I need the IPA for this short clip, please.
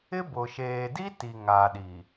ɪ˦ b ʊ˨ ʃ eː˨ d i˦ t i˨ ŋ a˨ ɗ i˨

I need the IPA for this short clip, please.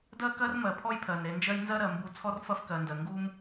d ɜ˦ k ɜ˦ r m ɜ˨ pʰ ɔ˦ j pʰ ɜ˨ n ɾ e˨ n d͡ʒ ɜ˦ j n z ɜ˦ ɾ ɜ˨ m b u˦ t͡sʰ ɔ˦ r f ɐ˦ f k ɜ˨ n d ɜ˨ ŋ ɡ u˦ m

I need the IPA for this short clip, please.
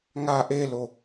ŋ a ʔ e l o

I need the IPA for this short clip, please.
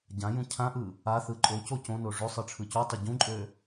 ɟ ã j ũ cʰ ã ʔ ɯ | a θ ɯ ǃʼ o c o c õ n o ʐ ø sˤ ɯ ʈ͡ʂʰ ɯ c u tˤ ø ɟ ũ ǃʼ ø

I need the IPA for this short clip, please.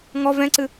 ŋ ɔ v ɛ̃ ǀ ɨ

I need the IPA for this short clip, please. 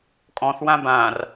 kʼ ɔ̃ θ w ã b ã r

